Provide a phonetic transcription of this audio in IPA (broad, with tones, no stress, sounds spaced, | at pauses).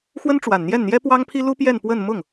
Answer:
x w ə˥ n ʈ͡ʂ w a˨˩ n n̪ j ɛ˥˩ n n̪ j ɛ˥ p w ɑ˥ ŋ pʰ i˥ l u˥ p j ɛ˥˧ n p w ə˥˧ n m ʊ˥˩ ŋ